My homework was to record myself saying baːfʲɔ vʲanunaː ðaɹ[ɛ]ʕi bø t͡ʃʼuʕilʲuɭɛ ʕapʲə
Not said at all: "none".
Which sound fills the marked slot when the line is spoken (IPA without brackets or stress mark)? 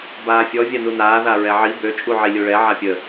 ɛ